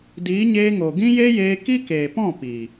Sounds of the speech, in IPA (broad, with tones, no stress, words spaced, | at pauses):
diː˨˦ɲeː˧ŋo˨ ɡĩ˦je˦jeː˧ ki˦keː˨pɔ̃˦˨ piː˨